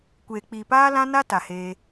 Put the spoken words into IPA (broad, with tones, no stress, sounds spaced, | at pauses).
kʷ eː˨ k͡p iː˨ p aː˦ l ã˦ n a˦ t a˨ h eː˧